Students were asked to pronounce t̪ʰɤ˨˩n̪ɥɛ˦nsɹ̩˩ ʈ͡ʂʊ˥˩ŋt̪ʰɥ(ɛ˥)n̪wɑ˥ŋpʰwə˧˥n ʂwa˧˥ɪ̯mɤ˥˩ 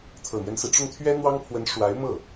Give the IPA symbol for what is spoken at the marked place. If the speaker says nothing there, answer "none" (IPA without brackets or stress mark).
ɛ˥